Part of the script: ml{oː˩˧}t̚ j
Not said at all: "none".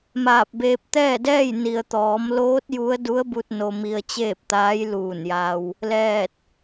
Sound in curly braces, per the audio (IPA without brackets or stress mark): oː˧˥